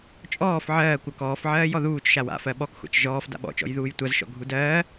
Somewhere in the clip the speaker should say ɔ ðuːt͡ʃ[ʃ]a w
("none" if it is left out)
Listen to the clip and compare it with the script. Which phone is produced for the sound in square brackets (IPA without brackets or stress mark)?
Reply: ʃ